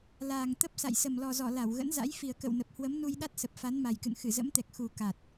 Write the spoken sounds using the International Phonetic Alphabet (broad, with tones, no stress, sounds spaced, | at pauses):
l aː˨˩ ŋ t̪ ə˦˥ p̚ s a̰˧˨ j s ə˨˩ m l ɔ˨˩ z ɔ˧˩ l a˧˩ w ɣ ə̰˧˥ n z a̰˧˥ j f i˨˩ ə̯ k ə̰˧˨ w n ə˨˩ p̚ h w ə˨˦ m n u˧ j ɗ a˦˥ t̚ s ə˨˩ p̚ f a˨˦ n m a˨˩ j k ɨ̰˧˨ n x ɨ˧˩ z ə̰˧˥ m t̪ ɛ˨˩ k̚ x u˨˩ k a˨˩ t̚